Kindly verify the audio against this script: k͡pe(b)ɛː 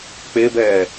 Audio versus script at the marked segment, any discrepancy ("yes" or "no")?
no